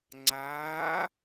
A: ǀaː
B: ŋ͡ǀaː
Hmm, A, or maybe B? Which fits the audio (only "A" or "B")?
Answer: B